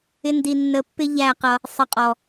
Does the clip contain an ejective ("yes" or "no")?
yes